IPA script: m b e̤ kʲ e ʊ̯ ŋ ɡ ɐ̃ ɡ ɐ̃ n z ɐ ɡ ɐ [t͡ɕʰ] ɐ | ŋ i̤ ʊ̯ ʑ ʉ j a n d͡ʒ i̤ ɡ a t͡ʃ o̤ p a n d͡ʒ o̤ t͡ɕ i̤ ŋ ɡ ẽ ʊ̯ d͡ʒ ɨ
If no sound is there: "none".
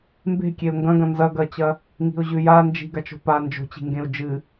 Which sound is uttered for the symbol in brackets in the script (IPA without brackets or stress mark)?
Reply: t͡ɕ